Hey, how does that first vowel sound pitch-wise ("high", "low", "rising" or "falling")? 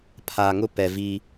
low